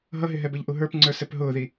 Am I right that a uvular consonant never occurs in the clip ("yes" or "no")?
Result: yes